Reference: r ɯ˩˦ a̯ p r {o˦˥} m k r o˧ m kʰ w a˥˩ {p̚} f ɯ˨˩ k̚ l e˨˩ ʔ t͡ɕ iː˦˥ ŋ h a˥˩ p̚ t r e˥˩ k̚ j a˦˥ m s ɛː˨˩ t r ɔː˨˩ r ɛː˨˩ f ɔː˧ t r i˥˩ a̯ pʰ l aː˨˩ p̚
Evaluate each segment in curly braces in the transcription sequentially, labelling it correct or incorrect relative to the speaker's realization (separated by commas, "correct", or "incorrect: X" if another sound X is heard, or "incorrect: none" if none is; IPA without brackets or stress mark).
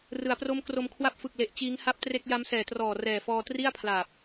correct, correct